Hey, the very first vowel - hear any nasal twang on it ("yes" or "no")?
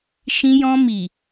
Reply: yes